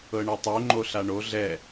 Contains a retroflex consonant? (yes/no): yes